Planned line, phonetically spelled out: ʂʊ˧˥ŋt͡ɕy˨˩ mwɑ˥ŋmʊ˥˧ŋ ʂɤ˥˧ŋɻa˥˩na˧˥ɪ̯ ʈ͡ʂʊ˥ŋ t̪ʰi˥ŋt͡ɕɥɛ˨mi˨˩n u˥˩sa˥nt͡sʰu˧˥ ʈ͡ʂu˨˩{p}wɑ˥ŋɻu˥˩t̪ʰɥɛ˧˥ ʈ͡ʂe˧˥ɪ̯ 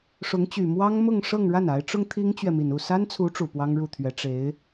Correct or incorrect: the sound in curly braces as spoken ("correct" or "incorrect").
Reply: correct